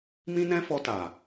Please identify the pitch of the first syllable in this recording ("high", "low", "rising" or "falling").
high